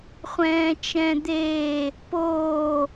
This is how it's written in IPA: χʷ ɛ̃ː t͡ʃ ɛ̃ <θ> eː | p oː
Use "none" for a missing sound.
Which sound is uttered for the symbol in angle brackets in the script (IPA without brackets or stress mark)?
d̪